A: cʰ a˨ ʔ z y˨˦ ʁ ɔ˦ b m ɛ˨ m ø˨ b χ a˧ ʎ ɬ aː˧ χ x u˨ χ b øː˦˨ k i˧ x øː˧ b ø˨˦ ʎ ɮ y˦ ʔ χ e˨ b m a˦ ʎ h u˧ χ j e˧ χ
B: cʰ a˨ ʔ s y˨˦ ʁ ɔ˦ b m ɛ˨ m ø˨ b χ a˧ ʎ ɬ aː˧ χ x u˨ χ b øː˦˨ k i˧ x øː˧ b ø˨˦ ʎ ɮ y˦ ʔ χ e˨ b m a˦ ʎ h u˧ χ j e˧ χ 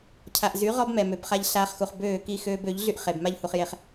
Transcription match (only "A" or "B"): A